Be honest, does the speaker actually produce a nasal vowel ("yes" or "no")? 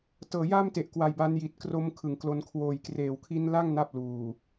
no